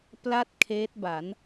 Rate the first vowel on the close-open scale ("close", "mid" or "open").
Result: open